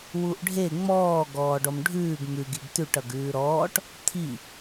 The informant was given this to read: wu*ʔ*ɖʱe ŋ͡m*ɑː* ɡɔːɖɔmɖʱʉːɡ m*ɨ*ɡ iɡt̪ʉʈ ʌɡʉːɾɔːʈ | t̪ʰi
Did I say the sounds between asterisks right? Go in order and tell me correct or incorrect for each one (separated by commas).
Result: correct, incorrect, incorrect